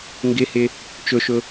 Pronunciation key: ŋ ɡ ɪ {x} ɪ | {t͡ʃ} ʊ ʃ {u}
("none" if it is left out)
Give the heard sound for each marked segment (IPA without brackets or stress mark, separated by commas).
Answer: h, t͡ʃ, ʊ